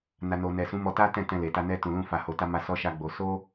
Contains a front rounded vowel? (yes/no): no